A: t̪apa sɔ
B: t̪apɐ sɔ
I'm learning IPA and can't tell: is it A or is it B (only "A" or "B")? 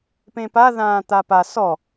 A